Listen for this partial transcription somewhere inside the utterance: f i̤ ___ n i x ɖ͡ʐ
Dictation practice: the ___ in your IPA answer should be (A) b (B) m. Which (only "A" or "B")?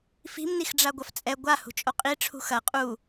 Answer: B